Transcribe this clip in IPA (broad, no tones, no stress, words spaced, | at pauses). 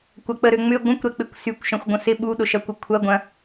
kʷɐk͡pəɾø ŋ͡mʏ ɡʷə̃kʷɾɛk͡pɪkʷ sykʷʃɐ̃xʷɡʷə̃ sɪ ɓuɗʊʃɐkʷɪ kʷʰɐɡʷɐ̃